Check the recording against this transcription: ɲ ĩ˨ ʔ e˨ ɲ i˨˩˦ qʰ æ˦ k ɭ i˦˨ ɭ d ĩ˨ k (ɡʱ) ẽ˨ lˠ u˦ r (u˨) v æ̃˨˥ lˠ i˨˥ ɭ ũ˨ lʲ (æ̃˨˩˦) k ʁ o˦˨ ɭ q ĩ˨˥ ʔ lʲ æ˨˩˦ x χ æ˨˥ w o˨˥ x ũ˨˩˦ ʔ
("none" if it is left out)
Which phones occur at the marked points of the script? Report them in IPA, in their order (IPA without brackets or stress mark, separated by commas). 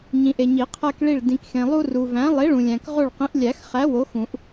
x, u˨, æ̃˨